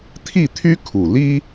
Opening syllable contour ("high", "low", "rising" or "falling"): falling